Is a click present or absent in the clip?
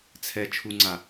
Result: present